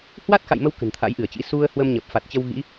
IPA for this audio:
h w a˦˥ t̚ x a̰˧˨ j m ə˧ w k ə̤˨˩ n t̪ʰ a̰˧˥ j ʔ ɨ˧˩ ə̯ t͡ɕ ḭ˧˥ s u˧ ə̯ h w ə˧ m ɲ ə˨˩ p̚ f a˨˩ t̚ t͡ɕ ə˧ w ɣ ḭ˧˥

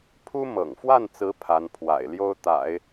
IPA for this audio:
pʰ u˥ m ɤ̰˨˩ ŋ f w a˥˩ n t͡s ɹ̩˧˥ pʰ a˧˥ n pʰ w a̰˨˩ ɪ̯ l j o˥ ʊ̯ t̪ a̰˨˩˦ ɪ̯

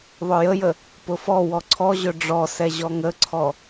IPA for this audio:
ðˤ ɵ j ə j ə | p ʊ f ɔ w ɔ ǀʰ ɔ ʑ ɵ ɖ͡ʐ ɔ s ɛ ʑ ɔ ŋ ə ǀʰ ɔ

